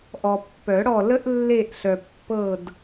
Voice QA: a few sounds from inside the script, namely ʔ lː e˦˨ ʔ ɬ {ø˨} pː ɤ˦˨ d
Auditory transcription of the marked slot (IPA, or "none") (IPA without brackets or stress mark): œ˨